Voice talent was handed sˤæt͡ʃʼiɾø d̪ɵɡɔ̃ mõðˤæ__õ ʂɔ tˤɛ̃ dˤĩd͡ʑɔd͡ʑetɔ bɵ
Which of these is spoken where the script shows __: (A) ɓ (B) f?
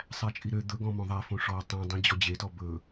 B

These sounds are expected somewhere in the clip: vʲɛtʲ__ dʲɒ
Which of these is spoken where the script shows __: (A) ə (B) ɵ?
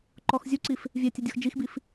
A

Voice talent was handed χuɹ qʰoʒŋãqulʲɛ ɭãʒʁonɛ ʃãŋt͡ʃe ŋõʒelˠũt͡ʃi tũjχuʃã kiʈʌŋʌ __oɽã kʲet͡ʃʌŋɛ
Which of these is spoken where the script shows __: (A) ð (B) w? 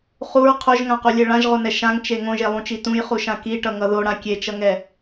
A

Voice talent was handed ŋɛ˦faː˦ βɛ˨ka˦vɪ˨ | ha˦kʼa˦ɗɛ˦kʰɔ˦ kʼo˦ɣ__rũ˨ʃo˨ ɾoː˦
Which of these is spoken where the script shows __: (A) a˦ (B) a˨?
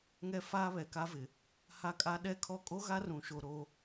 A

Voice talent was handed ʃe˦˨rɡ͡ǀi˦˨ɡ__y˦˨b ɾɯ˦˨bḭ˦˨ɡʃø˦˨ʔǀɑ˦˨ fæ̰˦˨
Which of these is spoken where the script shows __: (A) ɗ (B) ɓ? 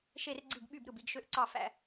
B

